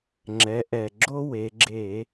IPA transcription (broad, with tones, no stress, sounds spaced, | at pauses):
ŋ͡ǁ ɛ˩˥ ʔ ɛ˨˩ ɡ͡ǁ o˦ w e˩˧ ɡ͡ǁ e˧˩˧